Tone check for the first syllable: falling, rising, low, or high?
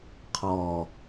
low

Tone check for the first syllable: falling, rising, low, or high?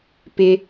high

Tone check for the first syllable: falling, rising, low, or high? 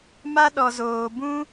high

